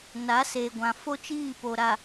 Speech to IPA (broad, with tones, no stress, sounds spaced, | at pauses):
n a˨˦ s e˨ ɡʷ ã˨ f o˦ t͡ʃ iː˦˨ p o˨ ɾ a˨